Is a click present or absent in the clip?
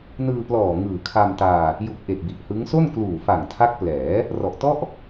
absent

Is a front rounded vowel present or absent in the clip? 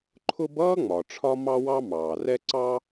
absent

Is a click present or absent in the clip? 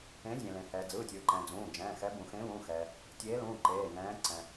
present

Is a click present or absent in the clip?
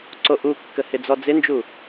present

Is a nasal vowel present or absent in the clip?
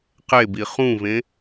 present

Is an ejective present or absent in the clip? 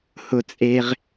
present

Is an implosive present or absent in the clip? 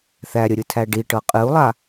absent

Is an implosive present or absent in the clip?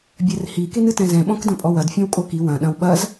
present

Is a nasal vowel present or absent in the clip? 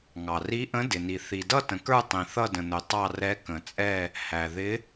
present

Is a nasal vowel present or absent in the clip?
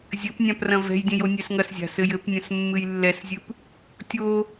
present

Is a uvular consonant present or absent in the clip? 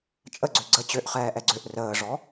present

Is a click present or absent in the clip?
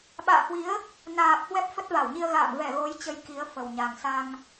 absent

